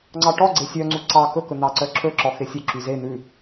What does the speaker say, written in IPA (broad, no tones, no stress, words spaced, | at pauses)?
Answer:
ŋ͡ǀɑʈɔ ɡ͡ǀesʲœ ŋ͡ǀuǀɑ kɵkɵn̪ɑ ǀœǁʰɵǁɔ xesʲɵ ǁyze n̪ʉ